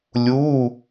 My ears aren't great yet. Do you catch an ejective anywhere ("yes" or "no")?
no